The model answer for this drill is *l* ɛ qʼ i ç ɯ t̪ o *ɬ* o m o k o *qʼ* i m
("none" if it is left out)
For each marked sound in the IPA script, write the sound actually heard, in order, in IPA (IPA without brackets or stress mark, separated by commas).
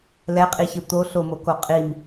l, ɬ, qʼ